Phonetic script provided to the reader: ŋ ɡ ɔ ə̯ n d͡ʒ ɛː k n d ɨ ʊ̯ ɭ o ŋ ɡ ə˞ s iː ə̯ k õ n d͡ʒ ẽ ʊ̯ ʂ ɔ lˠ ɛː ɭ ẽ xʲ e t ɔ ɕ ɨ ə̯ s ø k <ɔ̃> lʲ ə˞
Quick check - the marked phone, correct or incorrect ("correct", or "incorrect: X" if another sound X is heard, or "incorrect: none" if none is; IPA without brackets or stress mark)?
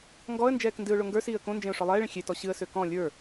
correct